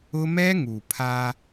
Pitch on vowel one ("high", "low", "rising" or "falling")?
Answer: high